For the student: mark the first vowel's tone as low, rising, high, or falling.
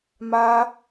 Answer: high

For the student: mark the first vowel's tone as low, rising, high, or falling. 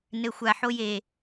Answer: low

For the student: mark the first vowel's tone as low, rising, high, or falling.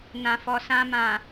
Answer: low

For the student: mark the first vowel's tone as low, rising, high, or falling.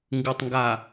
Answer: low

